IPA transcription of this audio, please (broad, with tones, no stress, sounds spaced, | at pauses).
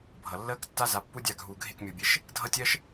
bʱ ʌ˨ lː əː˦ k tː a˦ z a˧ pː u˦ dʲ a˦˨ ɡʱ uː˨ ɡʱ e˦˨ k mʲ u˨ bʲ e˨˦ ʃ | dʱ ʌ˦ tʲ ɜ˦ ʃ